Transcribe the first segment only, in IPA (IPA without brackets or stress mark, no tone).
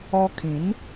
ɔ